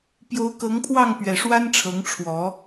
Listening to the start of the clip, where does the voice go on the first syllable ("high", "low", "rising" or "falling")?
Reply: rising